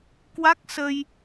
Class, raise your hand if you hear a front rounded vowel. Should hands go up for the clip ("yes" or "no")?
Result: no